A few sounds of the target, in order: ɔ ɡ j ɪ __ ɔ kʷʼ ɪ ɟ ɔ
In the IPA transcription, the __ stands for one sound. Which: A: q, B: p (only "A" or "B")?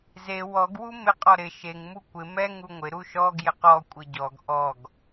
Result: A